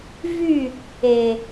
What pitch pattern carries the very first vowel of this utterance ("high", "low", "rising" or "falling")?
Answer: falling